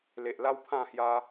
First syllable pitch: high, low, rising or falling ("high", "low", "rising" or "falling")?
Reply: low